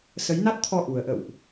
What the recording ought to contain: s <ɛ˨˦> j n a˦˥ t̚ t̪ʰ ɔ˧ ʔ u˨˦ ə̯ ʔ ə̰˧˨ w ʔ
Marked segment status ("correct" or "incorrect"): incorrect